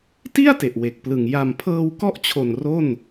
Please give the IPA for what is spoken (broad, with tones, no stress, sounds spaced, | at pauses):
t i˥˩ a̯ t e˨˩ ʔ w e˨˩ k̚ p l ɯ˨˩ ŋ j a˨˩ m pʰ ɤː˧ w k ɔ˥˩ ʔ t͡ɕʰ o˨˩ n r o˥˩ n